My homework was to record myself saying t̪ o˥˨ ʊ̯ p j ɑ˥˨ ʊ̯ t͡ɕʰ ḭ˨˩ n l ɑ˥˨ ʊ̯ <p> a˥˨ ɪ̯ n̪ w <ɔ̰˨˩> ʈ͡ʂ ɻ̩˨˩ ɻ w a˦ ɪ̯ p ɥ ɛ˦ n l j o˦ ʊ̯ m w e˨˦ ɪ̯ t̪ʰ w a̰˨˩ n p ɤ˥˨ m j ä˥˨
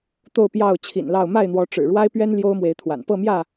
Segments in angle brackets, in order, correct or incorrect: incorrect: m, incorrect: ɔ˨˦

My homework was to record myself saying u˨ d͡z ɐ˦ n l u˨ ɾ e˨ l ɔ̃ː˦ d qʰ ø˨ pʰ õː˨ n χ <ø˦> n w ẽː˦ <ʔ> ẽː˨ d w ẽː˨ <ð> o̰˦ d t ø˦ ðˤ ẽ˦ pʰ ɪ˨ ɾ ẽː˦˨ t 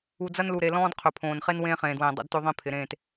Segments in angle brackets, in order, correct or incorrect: incorrect: e˦, incorrect: χ, incorrect: dˤ

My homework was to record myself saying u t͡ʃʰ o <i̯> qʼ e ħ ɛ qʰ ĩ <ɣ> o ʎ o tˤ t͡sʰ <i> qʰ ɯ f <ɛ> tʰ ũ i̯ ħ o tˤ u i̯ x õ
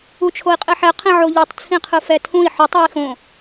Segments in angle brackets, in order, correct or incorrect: correct, incorrect: ʕ, incorrect: ĩ, correct

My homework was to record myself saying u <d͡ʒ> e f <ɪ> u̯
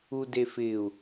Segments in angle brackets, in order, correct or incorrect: incorrect: d, correct

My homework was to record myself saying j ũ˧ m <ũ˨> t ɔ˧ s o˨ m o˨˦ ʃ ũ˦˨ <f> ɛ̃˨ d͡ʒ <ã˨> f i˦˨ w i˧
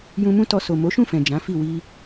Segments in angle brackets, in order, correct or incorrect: incorrect: ũ˦, correct, incorrect: ã˨˦

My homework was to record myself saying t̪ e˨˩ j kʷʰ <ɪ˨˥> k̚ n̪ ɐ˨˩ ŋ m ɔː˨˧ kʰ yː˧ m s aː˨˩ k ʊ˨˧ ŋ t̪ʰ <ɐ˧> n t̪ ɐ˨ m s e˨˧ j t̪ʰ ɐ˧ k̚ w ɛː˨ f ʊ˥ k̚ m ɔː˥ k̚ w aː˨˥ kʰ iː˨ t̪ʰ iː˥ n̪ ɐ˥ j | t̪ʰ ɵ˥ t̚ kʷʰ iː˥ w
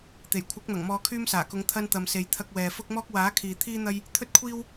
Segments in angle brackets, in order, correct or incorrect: correct, correct

